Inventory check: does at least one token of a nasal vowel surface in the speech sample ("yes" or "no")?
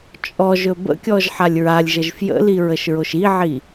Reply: no